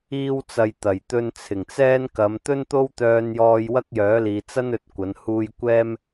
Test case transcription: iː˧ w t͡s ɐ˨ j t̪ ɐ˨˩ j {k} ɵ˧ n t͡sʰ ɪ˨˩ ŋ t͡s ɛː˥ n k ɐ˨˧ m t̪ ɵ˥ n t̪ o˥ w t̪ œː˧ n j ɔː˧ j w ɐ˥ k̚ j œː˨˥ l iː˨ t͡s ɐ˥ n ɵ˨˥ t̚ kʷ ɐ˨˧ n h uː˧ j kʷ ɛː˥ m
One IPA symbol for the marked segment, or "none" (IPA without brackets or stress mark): t̪